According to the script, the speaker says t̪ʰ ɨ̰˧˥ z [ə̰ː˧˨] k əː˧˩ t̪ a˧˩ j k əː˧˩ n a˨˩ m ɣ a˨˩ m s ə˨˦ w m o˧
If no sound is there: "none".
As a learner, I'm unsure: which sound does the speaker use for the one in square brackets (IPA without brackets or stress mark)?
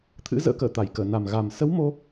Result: ə̰ː˧˥